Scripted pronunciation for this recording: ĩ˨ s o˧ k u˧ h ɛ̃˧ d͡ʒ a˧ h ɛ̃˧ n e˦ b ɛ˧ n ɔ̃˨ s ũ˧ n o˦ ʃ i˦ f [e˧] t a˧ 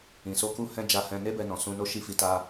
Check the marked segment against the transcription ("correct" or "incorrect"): incorrect